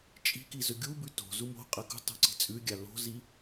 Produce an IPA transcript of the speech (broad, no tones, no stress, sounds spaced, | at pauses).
t͡ʃʼ i̤ k i z ɵ ɡʲ u b ʉ t o̤ z u m o̤ qʼ ɐ k ṳ tˤ o̤ ǀ i̤ t͡sʼ ʉ ɡʲ a l o̤ z i